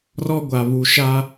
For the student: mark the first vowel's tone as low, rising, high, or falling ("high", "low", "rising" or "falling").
high